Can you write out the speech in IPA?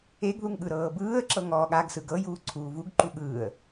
e ɡ ð u ŋ ɠ ɯ ɾ ɤː b ɯː ə̯ ǁ ɤ ŋ ɔː ɠ a ɡ s ɯ ɡ ɤ j uː ǀʰ uː v u ɡ ǃ u ɠ ɯː ə̯

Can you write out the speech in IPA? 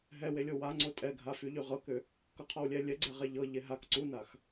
ɦ ɛ w e lʲ o w a ŋ͡ǀ o tʼ ɛ ɡʱ a f y ʎ y ʁ ɤ k ʏ | k ɤ qʰ ɔ w lʲ ɛ lʲ ɛ ɡ͡ǀ ɛ ʁ e ʎ ɤ ʎ e ɦ a k ǀ u n a x

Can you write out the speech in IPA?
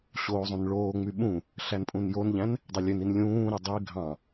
ɕ oː zˤ ũ n ɭ oː ŋ͡m y ɓ ũ | ɬ æ n pʼ ũ n j o n ʎ æ̃ n | dˤ e lʲ ø n i n lʲ ũː ɾ i dˤ i ɡʱ ɑ̃

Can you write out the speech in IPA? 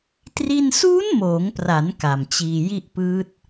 t r i˥˩ n s uː˦˥ n m oː˩˦ ŋ p r a˩˦ n k a˨˩ m t͡ɕ iː˧ j i˥˩ ʔ p ɯː˦˥ t̚

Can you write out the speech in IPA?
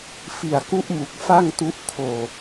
f i˨˩ a̯ k u˦˥ ʔ m u˨˩ k̚ f a˥˩ ŋ t u˦˥ ʔ kʰ oː˧

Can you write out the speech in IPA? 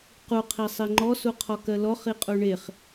q u qʰ i sˤ i ŋ͡ǃ ɔ s u qʰ ɔ k ɜ l ɔ χ i qʼ u ɳ e χ

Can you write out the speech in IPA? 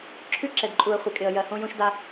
ǁʰ ʉ˦ ǁ ɛ˨ d ǃʼ u˨ ə̯ χʷ ɪ˨ kʼ ɪ˨ ə̯ j ɜ˨ h õ˦ j õ˦ ʃ d a˦

